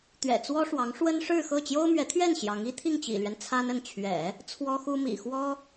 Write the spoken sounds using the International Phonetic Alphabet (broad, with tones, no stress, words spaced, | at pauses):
t̪ɥɛ̰˨˩t͡swɔ˥ʂwɑ˧˥ŋ ʂwə˥nʂɻ̩˥˧xɤ˥˩ t͡ɕjo˥ʊ̯mɥɛ˧˥t̪ʰɥɛ˥˩n ɕjɑ˧˥ŋ i˥t̪ʰi˥˩ŋt͡ɕḭ˨˩lɥɛ˦n t͡sʰa˥nə˥˩n t͡ɕʰɥɛ̰˨˩˦ | t͡sʰwɔ˥xu˥mḭ˨˩ xwɔ˥